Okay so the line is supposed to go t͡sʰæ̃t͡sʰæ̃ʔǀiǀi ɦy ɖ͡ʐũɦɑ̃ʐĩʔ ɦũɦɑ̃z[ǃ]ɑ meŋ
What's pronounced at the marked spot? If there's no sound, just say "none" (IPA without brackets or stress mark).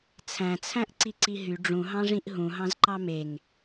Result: ǃ